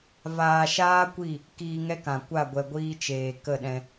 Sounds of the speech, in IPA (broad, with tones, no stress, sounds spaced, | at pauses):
v aː˧ ʃ aː˦ kʷ i˦˨ | k iː˧ ŋ ɛ˦ k ã˨ kʷ a˦˨ ɡʷ ɛ˧ ɡʷ iː˦ t͡ʃ eː˨ k ə˦˨ ɗ ɛ̃˧